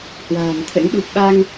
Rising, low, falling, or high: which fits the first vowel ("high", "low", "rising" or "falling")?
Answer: low